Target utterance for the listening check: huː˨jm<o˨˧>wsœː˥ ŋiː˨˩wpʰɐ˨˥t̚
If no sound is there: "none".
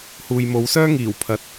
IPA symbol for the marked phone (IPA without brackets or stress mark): o˨˧